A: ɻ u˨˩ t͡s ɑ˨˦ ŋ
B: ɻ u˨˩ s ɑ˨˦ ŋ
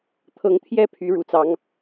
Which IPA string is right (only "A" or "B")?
A